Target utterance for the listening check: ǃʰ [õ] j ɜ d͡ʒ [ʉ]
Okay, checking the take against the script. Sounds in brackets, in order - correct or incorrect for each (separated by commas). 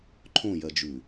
correct, correct